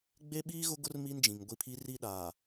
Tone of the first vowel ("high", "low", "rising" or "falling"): high